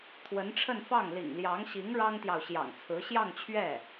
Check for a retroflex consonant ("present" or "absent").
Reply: present